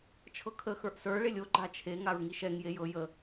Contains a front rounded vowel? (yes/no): no